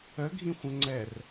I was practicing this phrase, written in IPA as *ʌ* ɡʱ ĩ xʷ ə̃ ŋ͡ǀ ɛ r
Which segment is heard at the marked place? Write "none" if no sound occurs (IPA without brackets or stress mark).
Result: ə